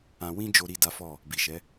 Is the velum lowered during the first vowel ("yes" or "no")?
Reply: yes